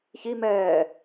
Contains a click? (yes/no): no